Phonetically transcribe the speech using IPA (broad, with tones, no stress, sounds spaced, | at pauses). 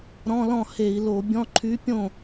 ɾ ɔ̃˧˥˧ l ɔ̃˥˩ h e˧˩˧ i̯ l o˧˩˧ bʲ ɔ̃˧˥˧ ǃʰ y˧˥ pʲ õ˥˩